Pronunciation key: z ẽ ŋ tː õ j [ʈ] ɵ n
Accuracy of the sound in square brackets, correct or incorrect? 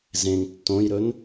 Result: incorrect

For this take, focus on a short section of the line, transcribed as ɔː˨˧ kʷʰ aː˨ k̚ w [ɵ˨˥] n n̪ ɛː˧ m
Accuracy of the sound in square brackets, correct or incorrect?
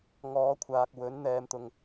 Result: correct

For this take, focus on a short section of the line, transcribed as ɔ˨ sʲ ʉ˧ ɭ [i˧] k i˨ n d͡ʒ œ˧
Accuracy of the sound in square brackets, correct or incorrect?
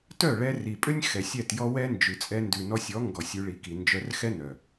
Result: incorrect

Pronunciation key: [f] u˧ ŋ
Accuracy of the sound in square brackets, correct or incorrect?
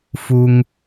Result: correct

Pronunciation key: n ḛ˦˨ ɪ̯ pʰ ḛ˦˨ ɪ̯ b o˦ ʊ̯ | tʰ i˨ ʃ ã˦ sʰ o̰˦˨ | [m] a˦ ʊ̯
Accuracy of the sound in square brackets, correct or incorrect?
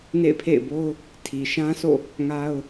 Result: incorrect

